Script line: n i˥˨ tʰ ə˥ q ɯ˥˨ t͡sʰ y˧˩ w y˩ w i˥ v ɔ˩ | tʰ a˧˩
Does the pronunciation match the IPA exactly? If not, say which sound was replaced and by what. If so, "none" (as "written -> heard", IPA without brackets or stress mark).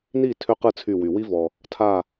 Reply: ə˥ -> ø˥